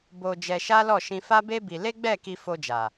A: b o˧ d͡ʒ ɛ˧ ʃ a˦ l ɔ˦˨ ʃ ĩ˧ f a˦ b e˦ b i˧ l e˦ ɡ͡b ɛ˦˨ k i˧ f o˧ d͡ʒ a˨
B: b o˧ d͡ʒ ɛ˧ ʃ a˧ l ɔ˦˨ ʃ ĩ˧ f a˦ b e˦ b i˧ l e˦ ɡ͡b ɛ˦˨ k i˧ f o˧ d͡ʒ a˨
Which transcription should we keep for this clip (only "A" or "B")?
A